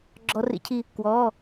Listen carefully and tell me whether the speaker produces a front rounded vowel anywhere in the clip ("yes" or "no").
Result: no